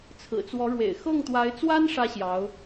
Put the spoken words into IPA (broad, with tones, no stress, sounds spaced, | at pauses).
t͡sʰ ɹ̩˨˩ t͡s w ɔ˧˥ ɻ w ḛ˨˩ ɪ̯ x ɤ˥˩ ŋ t̪ w a˧˥ ɪ̯ t͡s w a˥ n ʂ ä˥ ɕ j ɑ˧˥ ʊ̯